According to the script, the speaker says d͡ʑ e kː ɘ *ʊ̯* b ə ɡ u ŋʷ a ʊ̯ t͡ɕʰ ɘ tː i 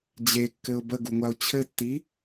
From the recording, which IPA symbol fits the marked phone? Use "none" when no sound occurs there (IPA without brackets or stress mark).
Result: ʊ̯